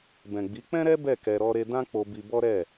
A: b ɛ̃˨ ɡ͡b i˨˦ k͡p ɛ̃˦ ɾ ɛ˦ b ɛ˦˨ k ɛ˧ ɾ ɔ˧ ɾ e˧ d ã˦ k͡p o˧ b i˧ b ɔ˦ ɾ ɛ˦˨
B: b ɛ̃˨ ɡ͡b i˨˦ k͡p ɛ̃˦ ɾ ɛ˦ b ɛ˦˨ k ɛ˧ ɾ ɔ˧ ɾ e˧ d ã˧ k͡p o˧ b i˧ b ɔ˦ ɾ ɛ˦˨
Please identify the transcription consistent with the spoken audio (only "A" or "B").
A